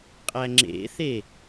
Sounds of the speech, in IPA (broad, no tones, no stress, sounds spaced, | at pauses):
qʼ æ ŋ͡ǁ ḛ θ e